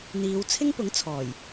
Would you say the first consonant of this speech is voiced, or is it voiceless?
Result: voiced